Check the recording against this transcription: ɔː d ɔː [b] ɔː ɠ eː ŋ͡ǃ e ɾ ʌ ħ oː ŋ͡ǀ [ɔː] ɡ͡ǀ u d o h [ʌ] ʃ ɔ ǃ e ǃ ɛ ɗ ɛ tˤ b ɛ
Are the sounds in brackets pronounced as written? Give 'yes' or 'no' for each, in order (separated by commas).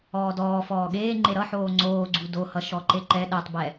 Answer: no, no, yes